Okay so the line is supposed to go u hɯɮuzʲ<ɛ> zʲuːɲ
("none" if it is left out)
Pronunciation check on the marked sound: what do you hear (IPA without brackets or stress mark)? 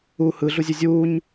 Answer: ɛ